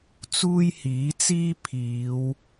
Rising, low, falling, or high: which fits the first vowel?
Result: high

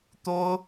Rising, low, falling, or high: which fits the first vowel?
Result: high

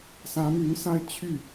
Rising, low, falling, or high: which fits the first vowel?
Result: rising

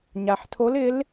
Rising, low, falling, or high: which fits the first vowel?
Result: low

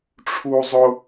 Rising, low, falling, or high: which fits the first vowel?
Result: high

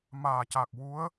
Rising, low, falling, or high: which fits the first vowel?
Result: low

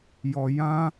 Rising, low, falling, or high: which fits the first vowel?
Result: low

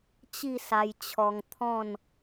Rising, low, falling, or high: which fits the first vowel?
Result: falling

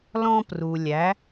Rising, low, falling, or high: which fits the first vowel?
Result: high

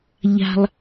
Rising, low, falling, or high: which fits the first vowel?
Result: low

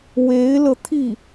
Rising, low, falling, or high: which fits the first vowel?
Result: rising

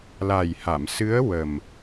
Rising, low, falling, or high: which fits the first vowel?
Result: low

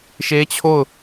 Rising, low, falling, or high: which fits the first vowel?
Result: high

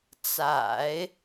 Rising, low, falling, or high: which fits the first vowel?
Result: low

